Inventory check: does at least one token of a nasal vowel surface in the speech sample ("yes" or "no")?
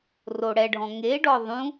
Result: yes